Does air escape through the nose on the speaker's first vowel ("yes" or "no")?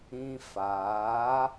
yes